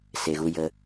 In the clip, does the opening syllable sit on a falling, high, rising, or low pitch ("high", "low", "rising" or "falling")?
low